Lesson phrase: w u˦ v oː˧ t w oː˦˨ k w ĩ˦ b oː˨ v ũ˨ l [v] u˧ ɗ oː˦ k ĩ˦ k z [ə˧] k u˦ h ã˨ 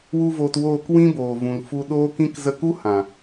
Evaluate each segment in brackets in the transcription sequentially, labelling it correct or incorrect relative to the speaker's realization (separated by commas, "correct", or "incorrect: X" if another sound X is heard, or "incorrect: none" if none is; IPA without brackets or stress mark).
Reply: incorrect: f, correct